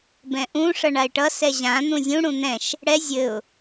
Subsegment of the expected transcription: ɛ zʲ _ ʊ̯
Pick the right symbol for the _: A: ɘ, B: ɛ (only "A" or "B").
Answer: A